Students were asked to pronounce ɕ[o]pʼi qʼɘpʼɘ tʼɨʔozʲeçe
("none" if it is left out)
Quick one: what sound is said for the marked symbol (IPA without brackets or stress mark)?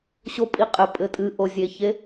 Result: o